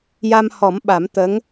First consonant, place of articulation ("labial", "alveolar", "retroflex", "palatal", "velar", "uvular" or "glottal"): palatal